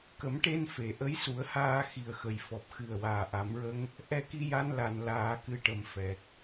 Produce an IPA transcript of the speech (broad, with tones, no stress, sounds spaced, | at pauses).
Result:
k ə˨˩˦ m ʈ e˧ n f e˨˩˨ ʔ ə˧˥ j s u˨˩˦ ə̯ h aː˧ x i˨˩ ə̯ x ə˨˩ j f ɔ˨˩ p̚ x ɨ˨˩ ə̯ w aː˨˩ ʔ a˨˩˦ m ɹ ə˧ ŋ | ʔ ɛ˧ k i˧ j a˧ n l a˨˩ n l aː˨˩˦ k ɨ˨˩ ʈ ə˨˩˨ m f ɛ˨˩ k̚